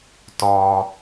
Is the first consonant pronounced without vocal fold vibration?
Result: yes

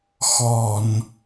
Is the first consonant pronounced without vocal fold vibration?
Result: yes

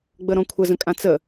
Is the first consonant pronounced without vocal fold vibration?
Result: no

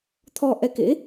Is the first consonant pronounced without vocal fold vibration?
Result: yes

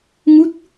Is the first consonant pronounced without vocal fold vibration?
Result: no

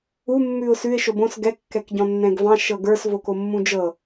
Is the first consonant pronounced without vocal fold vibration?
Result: no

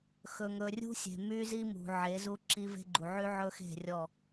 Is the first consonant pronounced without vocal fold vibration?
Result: yes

